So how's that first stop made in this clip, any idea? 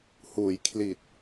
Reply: aspirated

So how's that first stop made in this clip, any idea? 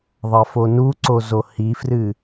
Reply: click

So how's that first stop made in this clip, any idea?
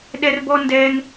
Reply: implosive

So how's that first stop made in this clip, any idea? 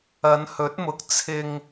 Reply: plain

